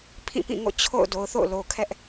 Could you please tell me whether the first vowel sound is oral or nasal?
nasal